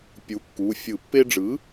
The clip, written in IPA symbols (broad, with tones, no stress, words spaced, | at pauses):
pʲu˩˥kːu˩˧˩fʲɯ˧˩˧ pːe˧ɖ͡ʐɯ˩˥